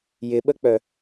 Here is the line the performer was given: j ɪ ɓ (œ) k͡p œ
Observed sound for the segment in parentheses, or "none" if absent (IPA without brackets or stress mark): ə